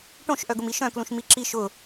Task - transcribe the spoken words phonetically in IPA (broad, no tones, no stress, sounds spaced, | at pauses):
ʈ õ ʃ ʔ œ ɡ ʊ m i ʃ œ̃ k l ũ ʃ m i ǁ i ʃ ʊ